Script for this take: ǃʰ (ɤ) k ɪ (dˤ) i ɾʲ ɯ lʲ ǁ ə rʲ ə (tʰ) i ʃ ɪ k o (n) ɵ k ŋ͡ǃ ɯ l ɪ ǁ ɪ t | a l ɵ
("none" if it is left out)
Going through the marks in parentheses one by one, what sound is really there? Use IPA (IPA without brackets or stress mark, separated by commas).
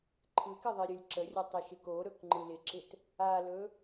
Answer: ɯ, ðˤ, tˤ, ɾ